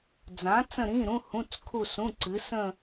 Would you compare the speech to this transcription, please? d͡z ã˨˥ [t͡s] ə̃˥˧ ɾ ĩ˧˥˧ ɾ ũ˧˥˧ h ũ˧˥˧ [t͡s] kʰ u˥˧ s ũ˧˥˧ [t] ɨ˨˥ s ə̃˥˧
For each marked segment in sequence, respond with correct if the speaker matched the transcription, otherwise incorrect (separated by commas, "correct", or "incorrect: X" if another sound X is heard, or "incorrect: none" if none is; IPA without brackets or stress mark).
correct, correct, incorrect: ǀ